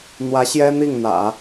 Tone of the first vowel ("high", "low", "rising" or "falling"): rising